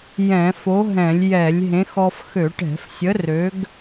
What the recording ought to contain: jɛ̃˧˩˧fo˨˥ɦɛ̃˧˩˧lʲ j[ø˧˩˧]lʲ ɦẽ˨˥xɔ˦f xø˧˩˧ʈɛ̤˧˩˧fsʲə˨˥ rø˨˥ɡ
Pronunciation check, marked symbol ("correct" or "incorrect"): incorrect